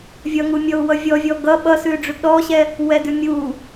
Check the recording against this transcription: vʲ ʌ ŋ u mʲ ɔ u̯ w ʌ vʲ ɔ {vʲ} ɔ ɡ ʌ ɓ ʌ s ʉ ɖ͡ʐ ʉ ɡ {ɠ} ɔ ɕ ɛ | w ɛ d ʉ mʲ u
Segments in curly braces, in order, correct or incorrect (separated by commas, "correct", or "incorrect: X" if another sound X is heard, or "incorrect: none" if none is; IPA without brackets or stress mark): correct, incorrect: ɗ